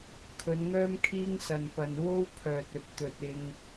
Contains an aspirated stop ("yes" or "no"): yes